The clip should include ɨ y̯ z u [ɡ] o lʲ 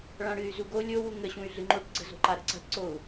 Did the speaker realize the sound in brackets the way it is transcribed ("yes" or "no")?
yes